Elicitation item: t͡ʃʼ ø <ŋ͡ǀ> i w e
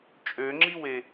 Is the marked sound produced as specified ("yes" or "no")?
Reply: no